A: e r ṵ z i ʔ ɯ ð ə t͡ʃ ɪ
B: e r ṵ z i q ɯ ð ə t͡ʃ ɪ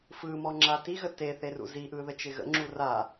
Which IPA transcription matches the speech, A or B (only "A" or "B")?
A